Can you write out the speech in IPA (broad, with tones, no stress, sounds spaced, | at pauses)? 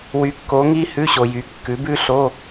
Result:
w y˧˥ kː o˧˥ ŋ i˥ h ʉ˧˥˧ ɕ o˨ j y˩˥ kː ʉ˩˥ b ʉ˥ ɬ o˧˥˧